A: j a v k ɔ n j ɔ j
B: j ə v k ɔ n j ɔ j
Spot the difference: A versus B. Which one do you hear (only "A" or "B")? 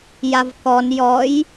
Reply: A